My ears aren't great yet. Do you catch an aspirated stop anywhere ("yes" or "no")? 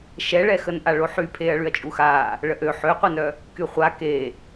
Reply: yes